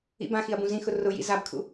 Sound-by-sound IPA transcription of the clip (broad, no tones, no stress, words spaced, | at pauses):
ḭbãxiɐ̯ bũzĩxʊ rʊjḭ zabkʰṵ